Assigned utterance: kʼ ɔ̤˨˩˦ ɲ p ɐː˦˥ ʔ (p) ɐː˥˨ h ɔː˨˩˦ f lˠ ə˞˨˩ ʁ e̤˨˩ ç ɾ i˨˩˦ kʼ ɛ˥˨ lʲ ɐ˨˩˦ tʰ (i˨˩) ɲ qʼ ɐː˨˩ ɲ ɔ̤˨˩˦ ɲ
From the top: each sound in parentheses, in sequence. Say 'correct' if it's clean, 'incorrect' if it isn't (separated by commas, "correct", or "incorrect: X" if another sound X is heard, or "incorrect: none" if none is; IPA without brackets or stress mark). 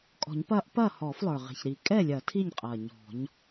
correct, incorrect: i˥˨